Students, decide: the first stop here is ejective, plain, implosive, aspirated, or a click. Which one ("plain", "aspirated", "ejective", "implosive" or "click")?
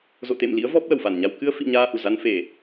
plain